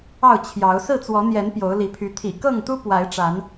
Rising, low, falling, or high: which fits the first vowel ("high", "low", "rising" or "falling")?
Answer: falling